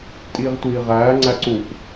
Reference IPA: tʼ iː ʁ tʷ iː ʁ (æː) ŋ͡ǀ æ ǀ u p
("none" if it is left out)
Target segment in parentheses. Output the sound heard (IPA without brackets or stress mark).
æː